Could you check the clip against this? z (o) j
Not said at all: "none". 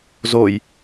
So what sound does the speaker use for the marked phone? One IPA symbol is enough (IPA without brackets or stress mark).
o